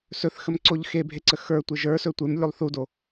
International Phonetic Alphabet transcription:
sɵθxəmǀoʎ xebʱeǀə xə˞tʷe ʒə˞sɵ tʷemlʲulˠ θudo

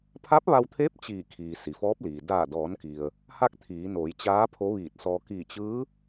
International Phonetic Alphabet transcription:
pʰa˧˥p̚ʋa˧wt̪ʰe˧˥p̚ t͡ɕiː˧˩kʰiː˩ si˩fɔː˧˥p̚liː˩ daː˧˩dɔː˩˧nki˩ə̯ | ha˥˨k̚t̪ʰiː˩˧noː˩˧jt͡ɕaː˧˥ pʰo˧˥ʋiː˧˩t̚sɔː˧ kiː˧˩t͡ɕɯː˧˥

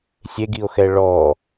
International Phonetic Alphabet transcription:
sʲeɡio̯xɛ ɭɔ

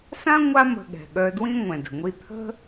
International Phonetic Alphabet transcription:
sã˥ ŋʷa˥ mə̤˧ɠɛ̤˩ɠœ˧dwĩ˥ ŋʷɛ̃˩də̤˩ŋʷi˧ t̪ʰə̤˥

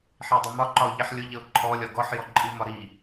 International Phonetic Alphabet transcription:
ħidˤʊmɒ ǃɒʊ̯ʎiħlʲʊ ʎəʊ̯ǃʰɔ lʲɒɡɔħ jɔǃʼimɒɾi

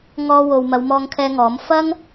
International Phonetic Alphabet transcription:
ŋɔː˧wo˨w mɐ˨˧wmɔː˧ŋkʰɛː˧ŋɔː˨˥m fɐ˥ŋ

